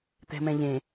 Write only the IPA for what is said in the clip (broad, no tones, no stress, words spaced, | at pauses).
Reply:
t̪ɛ̤mɛ̃ʎẽ